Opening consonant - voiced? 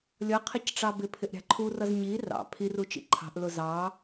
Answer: yes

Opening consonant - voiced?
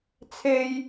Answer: no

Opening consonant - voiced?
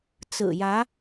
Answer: no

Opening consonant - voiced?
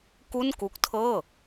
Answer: no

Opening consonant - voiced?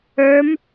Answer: yes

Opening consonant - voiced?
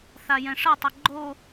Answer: no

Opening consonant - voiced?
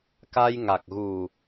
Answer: no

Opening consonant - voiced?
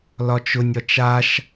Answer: yes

